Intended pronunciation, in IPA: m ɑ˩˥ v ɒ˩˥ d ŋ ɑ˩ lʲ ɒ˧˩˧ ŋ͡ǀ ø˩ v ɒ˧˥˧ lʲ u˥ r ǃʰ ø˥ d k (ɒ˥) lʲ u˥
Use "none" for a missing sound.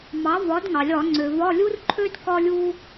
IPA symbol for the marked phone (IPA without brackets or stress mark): ɒ˥